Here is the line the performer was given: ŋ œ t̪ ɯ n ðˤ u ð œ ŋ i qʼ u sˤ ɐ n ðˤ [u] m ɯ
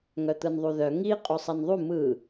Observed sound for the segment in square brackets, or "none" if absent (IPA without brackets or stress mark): u